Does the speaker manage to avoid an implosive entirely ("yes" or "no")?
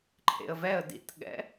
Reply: no